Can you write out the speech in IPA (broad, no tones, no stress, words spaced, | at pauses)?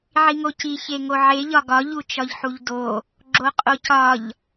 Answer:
ʕiŋoci çeŋoʕe ʎɒɡɒ ʎut͡ʃɒʎħuʎdo | ɡ͡ǁoqʼocɒʎ